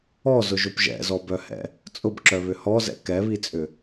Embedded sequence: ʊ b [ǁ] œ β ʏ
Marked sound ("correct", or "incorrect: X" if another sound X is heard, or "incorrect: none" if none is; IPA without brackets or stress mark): correct